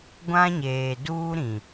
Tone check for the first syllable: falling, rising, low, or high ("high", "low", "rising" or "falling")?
high